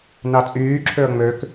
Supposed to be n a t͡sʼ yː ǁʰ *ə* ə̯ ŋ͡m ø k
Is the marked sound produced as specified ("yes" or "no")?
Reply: no